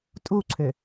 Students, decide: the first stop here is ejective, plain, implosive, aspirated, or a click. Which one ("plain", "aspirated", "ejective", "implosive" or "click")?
ejective